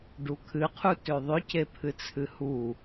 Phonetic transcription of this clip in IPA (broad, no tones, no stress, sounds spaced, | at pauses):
ɖ u kʰ ɨ qʰ u t ø ðˤ ʏ c e pʰ ɨ t͡sʰ ɨ h u